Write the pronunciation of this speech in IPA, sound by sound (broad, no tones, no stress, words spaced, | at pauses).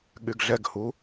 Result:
ɠyɡɮɛɡhu